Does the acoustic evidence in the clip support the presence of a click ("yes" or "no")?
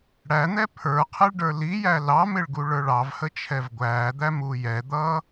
no